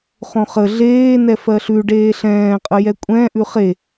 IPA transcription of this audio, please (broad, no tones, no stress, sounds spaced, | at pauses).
χ õ χ ə ɮ eː n ɛ f ɜ ɬ ʉ ɖ eː ɬ ɛ̃ː qʼ ə j ɛ kʷʼ ɛ̃ ʔ ʉ χ e